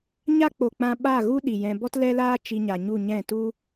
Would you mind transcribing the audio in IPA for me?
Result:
ɲa˦ k͡po˨k͡pã˧ ɓa˦˨ɣu˦ ɗi˨ jɛ̃˧ bɔ˦tlɛ˦laː˦ t͡ʃi˧ɲa˨ɲu˦˨ ɲɛ̃˦˨tu˦

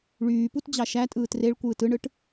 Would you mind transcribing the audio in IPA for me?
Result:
ɭyːput d͡ʑɑʃæ tʼɯːtreɭkʷɯːt ɯɳɯʈ

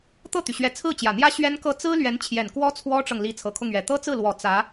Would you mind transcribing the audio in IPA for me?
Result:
t̪ɤ˥˩t̪y˩ ɕɥɛ˧˥t͡sʰɹ̩˥˩t͡ɕjä˨˩n̪jä˥ ɕɥɛ˥nkɤ˥˩ t͡sɹ̩˥lɥɛ˧˥n t͡ɕʰjɛ˨˩nkwɔ˥ t͡sʰwɔ˥ʈ͡ʂɤ˨ŋ li˧˥t͡sʰɤ˨˩kʰʊ˥˩ŋɥɛ˨˩ t̪ɤ˥t͡sɹ̩˥˩lwɔ˨˩ t͡sä˧˥

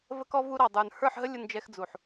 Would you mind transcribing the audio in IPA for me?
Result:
və˧kɔ˧ vu˧ɾɑ˨ dˤə˞˨n hə˞˦˨ħɦə˦ lʲʊ˧nd͡ʒɛ˧xd͡zu˨ħ

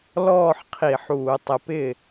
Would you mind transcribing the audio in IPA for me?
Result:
lɔː˥˩ħ qʰi˧˩˧ħuː˧˩˧ tˤɪ˨˦pɪ˥˩

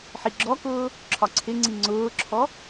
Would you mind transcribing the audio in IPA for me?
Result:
ħiɡ͡ǁɔkʊː | ǁʰɒǀʰɪŋ͡ǀi ŋ͡ǀʊːǁʰɔ

